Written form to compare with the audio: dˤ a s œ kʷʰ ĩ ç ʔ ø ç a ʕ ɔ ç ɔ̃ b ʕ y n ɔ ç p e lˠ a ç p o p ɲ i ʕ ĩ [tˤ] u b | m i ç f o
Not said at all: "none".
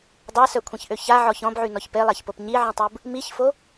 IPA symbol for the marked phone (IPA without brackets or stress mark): tˤ